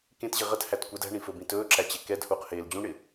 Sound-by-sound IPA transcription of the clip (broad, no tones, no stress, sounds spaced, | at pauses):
k ẽ t ʑ ɪ ʁ ə t h æ t kʷ ə d æ̤ ɳ ĩ f ɵ b ĩ t ɵː ǁ æ t͡ɕ e k ɛ d h uː q h eː l d͡ʑ ũ ɳ ɪ